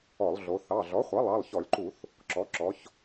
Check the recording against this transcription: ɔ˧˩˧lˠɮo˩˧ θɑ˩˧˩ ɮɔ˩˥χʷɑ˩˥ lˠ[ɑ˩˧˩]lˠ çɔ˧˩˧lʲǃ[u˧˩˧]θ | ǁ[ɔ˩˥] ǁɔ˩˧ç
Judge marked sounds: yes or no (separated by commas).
yes, yes, yes